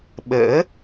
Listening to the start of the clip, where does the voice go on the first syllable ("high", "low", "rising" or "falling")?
rising